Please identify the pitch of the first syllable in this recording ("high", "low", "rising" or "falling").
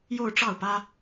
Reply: falling